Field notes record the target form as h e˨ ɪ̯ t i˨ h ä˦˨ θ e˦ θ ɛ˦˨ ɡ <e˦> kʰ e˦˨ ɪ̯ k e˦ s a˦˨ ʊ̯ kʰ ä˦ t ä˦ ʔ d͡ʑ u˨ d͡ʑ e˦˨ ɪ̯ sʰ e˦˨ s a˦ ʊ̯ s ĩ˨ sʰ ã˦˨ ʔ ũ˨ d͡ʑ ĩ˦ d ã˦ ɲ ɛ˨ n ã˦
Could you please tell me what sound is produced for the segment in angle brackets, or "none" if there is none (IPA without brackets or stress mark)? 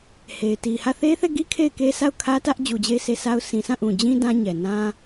i˦